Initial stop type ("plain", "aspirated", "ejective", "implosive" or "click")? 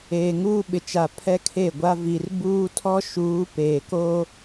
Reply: implosive